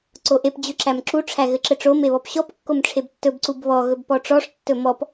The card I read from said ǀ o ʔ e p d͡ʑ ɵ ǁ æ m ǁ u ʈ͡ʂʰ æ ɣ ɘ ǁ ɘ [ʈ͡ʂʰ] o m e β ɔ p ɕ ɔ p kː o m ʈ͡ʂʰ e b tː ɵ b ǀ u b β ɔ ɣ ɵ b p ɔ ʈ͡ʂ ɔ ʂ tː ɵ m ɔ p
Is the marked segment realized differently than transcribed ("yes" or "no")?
yes